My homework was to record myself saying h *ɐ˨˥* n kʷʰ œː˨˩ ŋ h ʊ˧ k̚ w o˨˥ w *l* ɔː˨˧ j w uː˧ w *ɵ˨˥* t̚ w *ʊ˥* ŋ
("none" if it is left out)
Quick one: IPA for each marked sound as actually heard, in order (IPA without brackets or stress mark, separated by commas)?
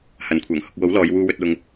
ɐ˨˥, l, ɵ˧, ʊ˧